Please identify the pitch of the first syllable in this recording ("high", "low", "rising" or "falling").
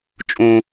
high